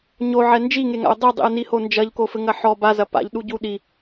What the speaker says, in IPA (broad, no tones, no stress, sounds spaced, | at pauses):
ɲ o ʕ ɛ n d͡ʒ i ŋ e ŋ a̰ ʊ̯ dˤ i dˤ ḭ ə̯ n i h o n d͡ʒ ɐ ʎ k o f ɘ ŋ ɐ ħ ɔ b a z ɐ p a̰ ʎ ɗ u ɟ u ɗ i